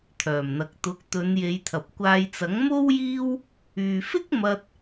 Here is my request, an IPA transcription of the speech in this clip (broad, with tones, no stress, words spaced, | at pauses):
t̪ʰœː˨˩mn̪ɐ˨k̚ t̪ʊ˨˥k̚t̪ɵ˨˧n je˨˧jt̪ʰɐ˨p̚kʷaː˧j t͡sɐ˨˥ŋ mo˥wjiː˥w | yː˨fɪ˥k̚mɐ˧t̚